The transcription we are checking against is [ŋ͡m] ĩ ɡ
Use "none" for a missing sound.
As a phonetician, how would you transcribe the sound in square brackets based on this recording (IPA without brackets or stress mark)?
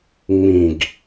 ŋ͡m